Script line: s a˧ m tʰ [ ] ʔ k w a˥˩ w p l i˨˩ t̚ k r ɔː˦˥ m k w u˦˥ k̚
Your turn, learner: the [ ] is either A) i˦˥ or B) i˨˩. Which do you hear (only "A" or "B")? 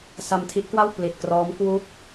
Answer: A